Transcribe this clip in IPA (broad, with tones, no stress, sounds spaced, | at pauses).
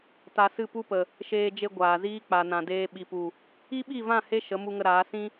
t a˧ s ɨ˦˨ p u˦ p ə˨ | ʃ eː˧ d͡ʒ e˧ ɡʷ aː˨ z iː˦ k͡p a˨ n ã˨ d eː˧ ɓ i˨ p u˨ | i˦ ɓ i˦˨ v ã˦˨ h e˦ ʃ ə˨˦ m u˧ ŋ ə˧ ɾ aː˨˦ s ĩ˦